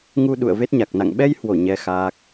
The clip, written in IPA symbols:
ŋ u˧ ɗ ṵ˧˨ ə̯ v e˦˥ t̚ ɲ a˨˩ k̚ n a̰˧˨ ŋ ɓ ɛ˧ j h w o˧˩ ɲ ɛ˧ x aː˦˥ k̚

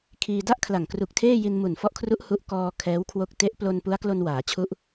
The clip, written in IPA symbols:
kʰ iː˧ d a˥˩ ʔ kʰ l a˨˩ ŋ k r u˨˩ k̚ tʰ eː˥˩ j i˧ n m u˨˩ n f ɔ˦˥ ʔ kʰ r u˦˥ ʔ h u˦˥ ʔ k ɔː˧ kʰ ɛː˦˥ w kʰ w o˦˥ k̚ t e˦˥ ʔ p l o˧ n p u˦˥ a̯ k l o˧ n w aː˩˦ t͡ɕʰ u˦˥ ʔ

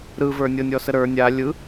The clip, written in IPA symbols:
ɾ ɯ v ə˞ nʲ ɤ nʲ ɔ s ə ɾ ə˞ nʲ a lʲ ɯ

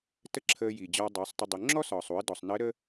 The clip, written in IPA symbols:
t ə˥ ǁʰ əː˧ j iː˩ d͡ʑ ɒː˧ dˤ u˩˧ sˤ tˤ ə˧ dˤ u˩˧ ŋ͡ǁ ɔ˥ s ɒː˩ sˤ u˩˧ ə̯ d ɔ˩ sˤ n əː˧˥ ɾ ə˥

